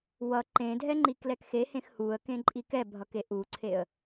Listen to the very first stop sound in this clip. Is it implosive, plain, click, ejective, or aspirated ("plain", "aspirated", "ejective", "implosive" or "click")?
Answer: click